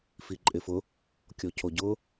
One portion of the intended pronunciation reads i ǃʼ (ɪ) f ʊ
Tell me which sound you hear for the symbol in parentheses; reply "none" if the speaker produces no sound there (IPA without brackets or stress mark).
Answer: ɪ